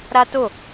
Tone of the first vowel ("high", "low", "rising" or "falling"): high